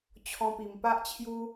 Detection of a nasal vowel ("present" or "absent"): present